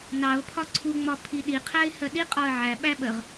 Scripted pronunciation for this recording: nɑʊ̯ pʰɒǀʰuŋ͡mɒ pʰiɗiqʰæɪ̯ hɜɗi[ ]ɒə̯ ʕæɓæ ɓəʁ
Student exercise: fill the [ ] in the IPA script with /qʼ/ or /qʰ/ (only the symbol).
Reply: qʼ